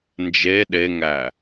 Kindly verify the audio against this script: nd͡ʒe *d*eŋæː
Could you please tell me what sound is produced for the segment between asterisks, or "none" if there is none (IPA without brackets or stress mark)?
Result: ɗ